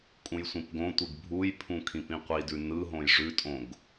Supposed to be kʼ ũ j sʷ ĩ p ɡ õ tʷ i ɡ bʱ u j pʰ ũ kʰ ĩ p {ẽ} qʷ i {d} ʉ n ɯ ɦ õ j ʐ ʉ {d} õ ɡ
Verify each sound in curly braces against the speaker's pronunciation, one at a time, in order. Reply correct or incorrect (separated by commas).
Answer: incorrect, correct, incorrect